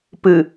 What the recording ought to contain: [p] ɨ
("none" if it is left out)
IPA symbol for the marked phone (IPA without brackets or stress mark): p